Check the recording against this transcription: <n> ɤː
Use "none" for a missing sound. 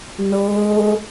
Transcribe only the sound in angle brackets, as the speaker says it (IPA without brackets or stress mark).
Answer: n